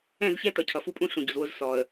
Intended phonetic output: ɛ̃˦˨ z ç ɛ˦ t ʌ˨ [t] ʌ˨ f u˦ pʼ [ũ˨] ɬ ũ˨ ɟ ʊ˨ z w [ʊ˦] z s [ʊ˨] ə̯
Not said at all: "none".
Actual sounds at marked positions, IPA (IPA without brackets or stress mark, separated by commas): cʰ, ũ˦, ʊ˦, ɔ˨